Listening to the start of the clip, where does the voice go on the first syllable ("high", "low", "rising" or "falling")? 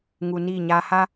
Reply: low